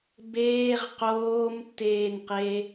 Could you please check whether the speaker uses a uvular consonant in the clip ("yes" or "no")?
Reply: yes